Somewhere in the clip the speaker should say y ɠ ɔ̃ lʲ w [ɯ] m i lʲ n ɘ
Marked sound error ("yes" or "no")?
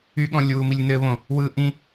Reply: yes